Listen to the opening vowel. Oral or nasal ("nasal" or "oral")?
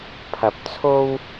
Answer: oral